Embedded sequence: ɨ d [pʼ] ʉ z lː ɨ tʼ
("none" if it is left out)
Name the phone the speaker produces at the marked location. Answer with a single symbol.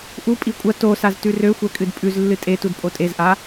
pʼ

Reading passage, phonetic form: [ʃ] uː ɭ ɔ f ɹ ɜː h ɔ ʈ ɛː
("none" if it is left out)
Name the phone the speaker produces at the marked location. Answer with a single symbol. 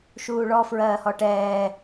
ʃ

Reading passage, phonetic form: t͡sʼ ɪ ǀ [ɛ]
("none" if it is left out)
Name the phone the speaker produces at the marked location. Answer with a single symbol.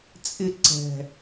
ɛ̤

